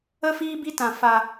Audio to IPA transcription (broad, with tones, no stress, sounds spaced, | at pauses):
ə˦ f iː˦ b i˦ t ã˧ f a˧